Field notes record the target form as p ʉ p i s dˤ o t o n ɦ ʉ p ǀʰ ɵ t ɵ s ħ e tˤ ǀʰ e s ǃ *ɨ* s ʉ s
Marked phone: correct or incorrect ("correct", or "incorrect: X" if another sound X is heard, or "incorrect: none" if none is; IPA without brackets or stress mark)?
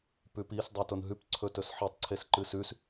correct